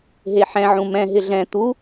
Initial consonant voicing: voiced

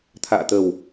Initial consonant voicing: voiceless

